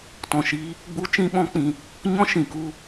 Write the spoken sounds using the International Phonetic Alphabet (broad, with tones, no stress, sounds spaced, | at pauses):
t ɔ̃˨ ʃ iː˧ | ɡ͡b u˦ t͡ʃ ĩ˦ ɓ ɔ̃˦ k͡p ĩ˧ | ɲ ɔ̃˦ ʃ ĩ˨ k u˦˨